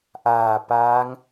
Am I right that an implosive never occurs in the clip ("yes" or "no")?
yes